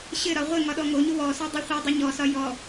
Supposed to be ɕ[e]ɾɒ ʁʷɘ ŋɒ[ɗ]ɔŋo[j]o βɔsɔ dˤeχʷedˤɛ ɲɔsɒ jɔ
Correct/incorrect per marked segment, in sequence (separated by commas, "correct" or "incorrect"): incorrect, correct, incorrect